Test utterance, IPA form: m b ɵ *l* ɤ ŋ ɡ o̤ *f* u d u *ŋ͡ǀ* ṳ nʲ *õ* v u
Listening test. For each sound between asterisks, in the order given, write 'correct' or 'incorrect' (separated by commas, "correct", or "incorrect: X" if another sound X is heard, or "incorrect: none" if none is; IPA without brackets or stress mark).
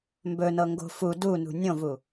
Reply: incorrect: n, correct, incorrect: n, correct